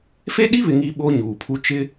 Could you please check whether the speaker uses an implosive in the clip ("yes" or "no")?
yes